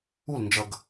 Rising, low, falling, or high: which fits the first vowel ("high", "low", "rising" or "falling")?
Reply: falling